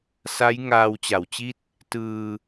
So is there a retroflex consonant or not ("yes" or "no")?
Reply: no